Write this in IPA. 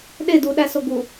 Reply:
ɗe duɗæso ɡu

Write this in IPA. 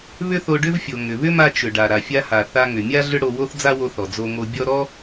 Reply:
βʏ˥θo˧ɖʏ˥vfʲo˩ ŋʏ˩ βʏ˥ma˧t͡ʃʏ˩ ɖa˩ɾa˩fʲa˧ha˩ θa˧ŋʏ˩mʲa˥ ɮʏ˥ɽo˧wo˥θ d͡za˥wo˧θɔ˩ d͡zo˧ŋo˧ bʲɔ˥ ɾɔ˥

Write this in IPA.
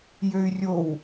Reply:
jøy̯rʲow

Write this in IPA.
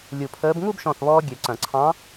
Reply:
lʲu˧˩ pʰəː˧˥b ŋu˥˧bʃɔ̃˧˩θβɔː˧ ɡʲø˨˩˦ǀɐ̃˨˩˦ǀʰɑ̃˧˥

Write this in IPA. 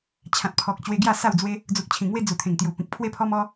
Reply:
t͡ɕʰã˨t̚pʰɔ˨k̚ t͡ɕwe˧ɡja˥˧sa˥˧w d͡zwe˧ | d͡zu˨k̚t͡ɕʰĩ˨˩ŋwe˧ d͡zu˨˩t̪ʰẽ˨˩ŋt̪ju˨˩ pĩ˨k̚ pʰwe˧pʰɔ˧m ɔ˧

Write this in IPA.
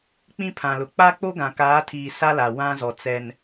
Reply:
k͡pĩ˦pʰã˨lʊ˨ k͡pa˦k͡po˦ ɡã˨kaː˨˦tʰiː˨ sa˦la˨ wã˦zɔ˨ t͡sɛ˨n

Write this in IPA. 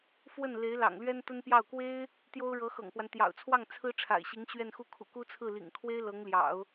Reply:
fwə˥˩nle˧˥ɪ̯ lɑ̰˨˩ŋlɥɛ˥nt̪ə˥npjɑ˥˩ʊ̯ kwe˥ɪ̯ | t̪jo˥ʊ̯ɻɤ˧˥xɤ̰˨˩ŋpwa˦n t̪jɑ̰˨˩ʊ̯t͡sʰwɑ˥˩ŋ t͡sʰɹ̩˥ʈ͡ʂʰa̰˨˩ɪ̯ɕi˧˥ŋ ɕɥɛ˥˧nxu˥˩ kʰṵ˨˩ku˥t͡sʰɹ̩˥˩ lḭ˨˩ŋkʰwe˥ɪ̯ lɤ˧˥ŋljɑ̰˨˩˦ʊ̯

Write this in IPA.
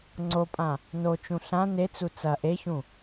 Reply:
ŋ͡ǀopʼã | not͡ʃũ ɬã net͡su t͡sɐ ʔeçũ

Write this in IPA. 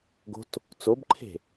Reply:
ɡo̤t | t͡sobǃʰe̤

